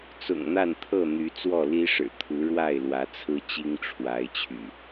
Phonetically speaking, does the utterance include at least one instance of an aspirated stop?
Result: yes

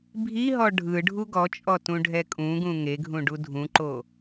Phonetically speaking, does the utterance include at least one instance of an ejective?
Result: yes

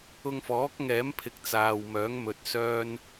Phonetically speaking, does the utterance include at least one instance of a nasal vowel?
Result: no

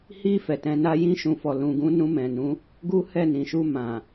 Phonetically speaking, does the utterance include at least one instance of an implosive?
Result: no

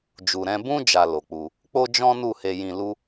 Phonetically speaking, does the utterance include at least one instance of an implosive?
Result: no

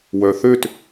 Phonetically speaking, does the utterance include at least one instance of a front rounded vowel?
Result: yes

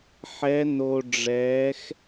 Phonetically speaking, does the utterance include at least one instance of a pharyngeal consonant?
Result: yes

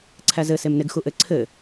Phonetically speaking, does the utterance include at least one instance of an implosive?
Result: no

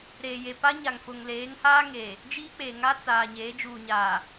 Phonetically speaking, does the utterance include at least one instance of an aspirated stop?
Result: no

